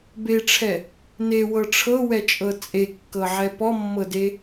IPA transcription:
b e ʈ͡ʂʰ ɛ | n e w ɤ ʈ͡ʂʰ ɤ w ɛ t͡ʃʼ ɤ t͡sʼ e kː ɤ ʕ ɛ p ɔ mː ɤ d e

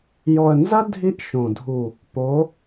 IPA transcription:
j ɔ˨ ə̯ n z ɐ˦ dʱ i˦ ʔ ʃ õ˨ dʱ u˨ | p o˨˦

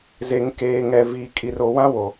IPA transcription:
z e˨ ŋ k eː˨ ŋ ɛ˨ v i˨ kʼ i˨ r o˨ w ã˦ w o˨

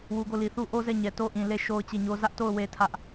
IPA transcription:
w u˨ ɡ o˦˨ l i˨ θ u˦ ʔ o˦ z ɛ˦˨ ɲ ɛ˨ t o˦ ʔ ĩ˨ l e˦˨ ʃ o˦ ʊ̯ t͡ɕ e˦˨ ɲ o˦ z ä˦ ʔ t o˦˨ ʊ̯ w e˦ tʰ ä˦ ʔ

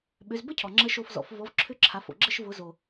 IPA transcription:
ɓ ʏ˩˧ z b ə˦˥ cʰ ɔ˩ ŋ͡ǁ ə˦˥ ʃ o˦˨ f z ɔ̰˩˥ f v ɔ˩˥ v ǁʰ ʏ˦˥ ǁʰ a˩˧ f o̰˩ ɡ͡ǁ ə˦˨ ʃ v ʊ˩˥ z o˩

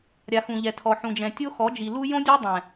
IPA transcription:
ɾʲ a˨ x ũ˨ ʎ ɛ˨ tʰ ɔ˨ ħ ũ˨ d͡ʒ ɛ̃˨ tʲ o˦ x ɔ˨˦ d͡ʒ i˨ l u˦ j õ˦ dʲ e˦ dˤ ɛ̃˨

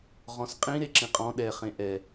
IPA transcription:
ʁ ɔ̃ s qʼ ĩ ɾ e ǁ ĩ qʼ ɔ̃ ɗ ɛ χ ẽ ʔ ɛ

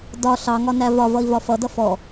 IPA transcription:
d ɒ ɬ ɑ ŋ ɒ n æ v ɒ v ʌ i̯ v ɒ f ʌ d ʌ f ɔ

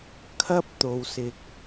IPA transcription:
kʰ ɐ˧ p̚ t̪ o˨ w s ɪ˨ k̚

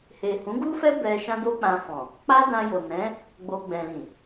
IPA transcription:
h e˨ h ũ˨˦ ɡ u˦ f ɛ˦ b ɛ˧ ʃ ã˦ d o˦ k͡p ã˧ f ɔ̃˨ | k͡p a˦ d ã˧ j o˨ n ɛ̃˨˦ | ɡ͡b o˧ ɡ͡b ɛ̃˨ l ĩ˨

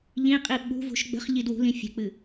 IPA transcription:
ʎ ĩ qʼ i ɓ ṳ v ṳ ʃ ɡ͡b ə̤ χ ʎ i d w ṳ l ĩ fʲ ə̤ k͡p ɨ

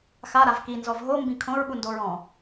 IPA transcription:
x a ɾ a v k i n z ɔ v ɦ o m b ĩ kʰ õ ɹ ɓ u n d o ɹ ɔ̃

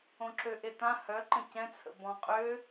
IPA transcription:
õ ǁ ø ʔ e t ã h œ ǃ ə̃ c ɛ̃ t͡sʰ ə̰ b ɔ̃ qʼ ø

